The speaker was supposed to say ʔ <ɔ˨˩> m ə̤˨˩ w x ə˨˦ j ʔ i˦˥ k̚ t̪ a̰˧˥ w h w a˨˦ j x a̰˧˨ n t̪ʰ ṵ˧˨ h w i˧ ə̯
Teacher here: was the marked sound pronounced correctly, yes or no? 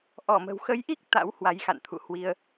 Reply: no